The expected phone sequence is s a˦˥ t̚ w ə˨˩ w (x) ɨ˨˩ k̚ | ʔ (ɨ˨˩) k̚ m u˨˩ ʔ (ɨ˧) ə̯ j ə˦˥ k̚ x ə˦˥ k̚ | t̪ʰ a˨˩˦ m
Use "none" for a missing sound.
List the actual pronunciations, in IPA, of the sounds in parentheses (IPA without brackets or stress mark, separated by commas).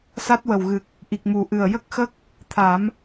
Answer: ɣ, i˨˩, ɨ˨˩